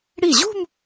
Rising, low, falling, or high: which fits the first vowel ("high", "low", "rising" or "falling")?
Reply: falling